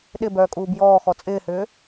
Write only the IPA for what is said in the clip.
ɗ ɪ b œː kʼ uː b j ɔː x ɔ t͡sʼ ɪː h ʏː

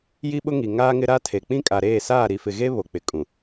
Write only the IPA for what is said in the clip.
j i˦ ɓ ʊ˦ ŋ i˨ ŋ aː˦ ŋ ɪ˦ ɾ a˦ tʰ e˨ k͡p ĩ˦ kʼ a˨ ɾ eː˦˨ s aː˦˨ ɾ i˨ f ɪ˨ ɣ e˦ β o˨ k͡p ɪ˨ kʼ ũ˨

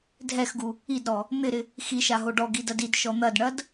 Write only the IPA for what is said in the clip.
dʱ ɛ x ɡ u | i d ɾ ɔ | n̪ ɪ ɾ ɪ | x i ʃ a ɦ o ɖ ɔ ɡ i d ɐ d i d ʃ ɔ n̪ ɐ d ɳ ɐ d

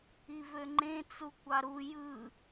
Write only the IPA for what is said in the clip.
i v ø ŋ͡ǃ ẽ t͡s u kʷ ɑ ɾ u j ɯ

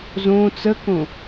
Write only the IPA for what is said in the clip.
z õ t͡s ə k õ

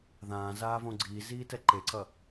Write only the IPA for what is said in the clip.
ð ãː z aː v õ ɡ͡ǀ iː z iː t ɛ ǃ e ǀ ʌ

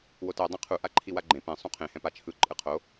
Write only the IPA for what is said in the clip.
w o t ɛ dˤ ɛ̃ qʰ u ʔ a ǃʰ i w a ɡ͡ǃ ẽ p ẽ sˤ ũ qʰ ẽ h ɛ̃ p a t͡ʃʰ ɯ ǃʼ ɯ qʰ o

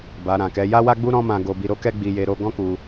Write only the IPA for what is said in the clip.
b a˨ ɾ ã˨ k ɛ˨˦ j a˦ w a˦ ɡ͡b u˦ ɾ ɔ̃˦ m ã˧ ɡ o˧ b i˧ ɾ o˦ k ɛ˦ ɡ͡b i˧ j e˧ ɾ o˦ ɡ ɔ̃˦ k u˧

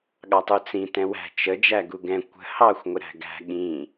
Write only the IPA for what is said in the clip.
ɠ ɑ tˤ u t͡s ĩ t ɛ̃ w æ̤ t͡ʃ ə d͡ʒ æ ɡ u ɡ ɛ̃ kʷ ə̤ h ɑ xʷ ŋʷ ɪ ɾ æ̤ ɡ æ̤ ɠ ĩ

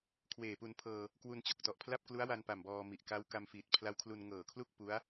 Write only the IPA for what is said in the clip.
kʰ w eː˨˩ p u˧ n pʰ ɤː˧ | k w u˧ n t͡ɕ o˨˩ k̚ t ɔ˨˩ ʔ pʰ l a˥˩ p̚ k l u˦˥ a̯ w a˧ n p a˨˩ m b ɔː˧ m i˨˩ ʔ k a˦˥ w k a˧ m f iː˨˩ t̚ pʰ l a˦˥ w kʰ l u˧ n ŋ ɤː˨˩ kʰ l u˥˩ k̚ p u˦˥ a̯

